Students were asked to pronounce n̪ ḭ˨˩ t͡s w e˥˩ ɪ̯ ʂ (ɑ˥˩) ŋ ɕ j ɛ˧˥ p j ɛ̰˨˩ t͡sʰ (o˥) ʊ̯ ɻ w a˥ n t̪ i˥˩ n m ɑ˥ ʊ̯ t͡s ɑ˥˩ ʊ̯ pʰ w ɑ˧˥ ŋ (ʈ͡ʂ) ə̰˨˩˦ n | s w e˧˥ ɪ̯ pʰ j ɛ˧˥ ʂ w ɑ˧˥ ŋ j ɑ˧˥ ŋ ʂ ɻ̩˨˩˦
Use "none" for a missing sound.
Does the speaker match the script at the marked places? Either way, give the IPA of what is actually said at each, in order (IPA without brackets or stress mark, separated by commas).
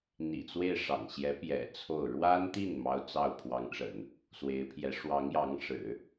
ɑ̰˨˩, o˥˩, ʈ͡ʂ